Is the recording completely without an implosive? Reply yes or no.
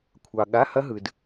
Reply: no